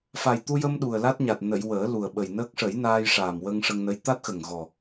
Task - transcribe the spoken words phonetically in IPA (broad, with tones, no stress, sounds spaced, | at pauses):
f a˨˩ j t̪ u˧ j ə˧ m ɗ u˨˩ ə̯ l a˦˥ t̚ ɲ a˨˩ t̚ n ə˨˩˨ j w əː˨˩˦ l u˨˩ ə̯ ɓ ə˨˩ j n əː˦˥ k̚ ʂ ə˨˩˦ j n aː˧ j ʂ aː˨˩ m w ə˧ ŋ ʂ ə˧ ŋ n ə˧˥ j t̪ a˦˥ t̚ x ə˨˩ ŋ ɣ ɔ˨˩